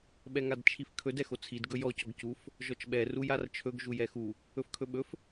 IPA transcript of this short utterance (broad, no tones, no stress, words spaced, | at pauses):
ɓɛŋadt͡ʃʰifkʰɵd ɛxot͡sʰid ɡɵjɔ cɔɡcuf | ʒɔt͡ʃɓɛ rujart͡ʃʰɵɡ ʒujɛxu | ɵfkʰɵɓɵf